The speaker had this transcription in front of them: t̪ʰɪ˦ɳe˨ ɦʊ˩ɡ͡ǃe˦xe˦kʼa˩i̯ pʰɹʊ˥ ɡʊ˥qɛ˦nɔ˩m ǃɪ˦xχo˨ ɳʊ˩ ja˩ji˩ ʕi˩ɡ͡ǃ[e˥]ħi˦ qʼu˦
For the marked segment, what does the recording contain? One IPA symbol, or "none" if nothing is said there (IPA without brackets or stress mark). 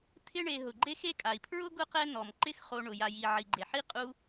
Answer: e˩